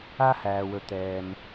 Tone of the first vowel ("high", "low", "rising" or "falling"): high